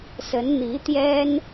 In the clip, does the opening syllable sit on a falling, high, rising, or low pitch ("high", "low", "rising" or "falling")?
rising